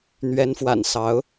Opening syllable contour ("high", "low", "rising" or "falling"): rising